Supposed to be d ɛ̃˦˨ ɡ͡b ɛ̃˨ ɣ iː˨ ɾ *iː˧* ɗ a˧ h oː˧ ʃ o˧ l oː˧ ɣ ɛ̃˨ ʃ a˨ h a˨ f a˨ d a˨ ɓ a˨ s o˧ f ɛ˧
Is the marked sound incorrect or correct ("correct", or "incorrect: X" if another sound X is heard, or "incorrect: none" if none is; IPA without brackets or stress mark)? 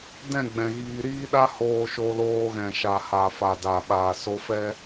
correct